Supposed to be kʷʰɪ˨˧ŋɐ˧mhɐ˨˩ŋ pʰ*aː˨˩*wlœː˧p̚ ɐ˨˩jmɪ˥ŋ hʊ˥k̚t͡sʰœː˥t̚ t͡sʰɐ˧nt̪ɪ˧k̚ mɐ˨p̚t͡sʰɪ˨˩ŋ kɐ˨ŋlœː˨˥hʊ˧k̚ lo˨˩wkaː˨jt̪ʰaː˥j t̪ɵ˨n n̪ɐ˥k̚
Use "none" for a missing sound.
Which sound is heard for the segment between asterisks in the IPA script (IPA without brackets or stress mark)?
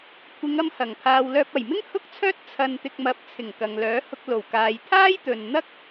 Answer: aː˨